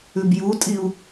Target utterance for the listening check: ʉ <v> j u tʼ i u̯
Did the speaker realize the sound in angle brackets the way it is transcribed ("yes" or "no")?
no